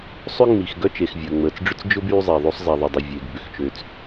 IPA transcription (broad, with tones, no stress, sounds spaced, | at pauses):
sˤ ʏ˥ ŋ͡m i˩ x ɡ œ˥ t͡ʃ e˩ x vʲ əː˩ ŋ͡m əː˩ t͡s ɖ͡ʐ ʏ˥ t͡s d͡ʒ ʊ˥ b yː˥ zˤ e˩ ðˤ o˥ sˤ zˤ ɛ˩ ðˤ ə˩ dˤ ʏ˩ vʲ e˩ ɡ b ʏ˩ x t͡ʃ ø˩ t͡s